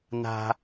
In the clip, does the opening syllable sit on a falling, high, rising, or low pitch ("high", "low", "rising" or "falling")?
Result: high